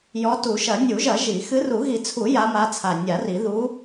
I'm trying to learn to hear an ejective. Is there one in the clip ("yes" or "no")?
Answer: no